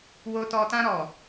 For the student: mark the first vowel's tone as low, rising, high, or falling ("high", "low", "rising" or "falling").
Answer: low